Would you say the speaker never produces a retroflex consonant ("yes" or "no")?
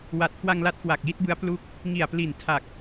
yes